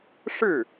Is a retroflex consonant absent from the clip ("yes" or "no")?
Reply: no